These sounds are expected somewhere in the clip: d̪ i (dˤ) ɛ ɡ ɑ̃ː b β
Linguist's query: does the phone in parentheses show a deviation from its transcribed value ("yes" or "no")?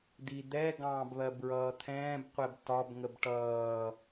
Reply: yes